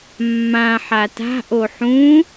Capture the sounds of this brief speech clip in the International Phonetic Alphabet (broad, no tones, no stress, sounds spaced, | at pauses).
mː ã ħ a t a̤ ʔ o ħ ũ